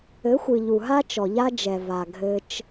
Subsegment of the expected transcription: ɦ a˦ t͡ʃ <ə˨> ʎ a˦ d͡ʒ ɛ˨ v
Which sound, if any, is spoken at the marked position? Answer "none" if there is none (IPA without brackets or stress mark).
ɔ˨